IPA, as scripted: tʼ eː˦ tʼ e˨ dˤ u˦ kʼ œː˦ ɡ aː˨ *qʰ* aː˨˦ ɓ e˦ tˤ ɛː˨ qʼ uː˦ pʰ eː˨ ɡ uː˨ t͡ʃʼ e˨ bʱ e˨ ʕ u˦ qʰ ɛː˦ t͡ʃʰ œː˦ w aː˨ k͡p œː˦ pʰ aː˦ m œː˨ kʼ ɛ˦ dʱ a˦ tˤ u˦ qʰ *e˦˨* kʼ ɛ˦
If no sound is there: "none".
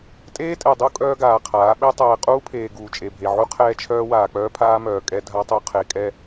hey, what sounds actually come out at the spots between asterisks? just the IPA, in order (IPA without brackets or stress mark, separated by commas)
qʰ, e˨